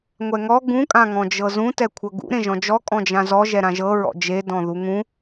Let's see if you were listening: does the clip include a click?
no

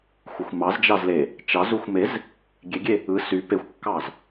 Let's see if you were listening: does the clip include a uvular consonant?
no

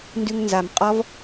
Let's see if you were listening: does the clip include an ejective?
yes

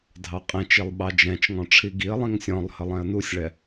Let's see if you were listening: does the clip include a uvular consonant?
yes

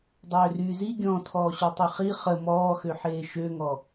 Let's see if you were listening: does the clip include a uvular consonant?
yes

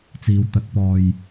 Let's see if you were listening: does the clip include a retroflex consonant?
no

